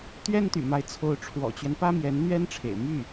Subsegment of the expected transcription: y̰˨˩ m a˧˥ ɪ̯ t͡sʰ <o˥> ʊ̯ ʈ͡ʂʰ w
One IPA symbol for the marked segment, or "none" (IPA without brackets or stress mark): o˧˥